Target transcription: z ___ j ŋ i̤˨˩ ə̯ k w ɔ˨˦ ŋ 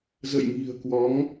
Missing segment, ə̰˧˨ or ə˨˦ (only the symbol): ə̰˧˨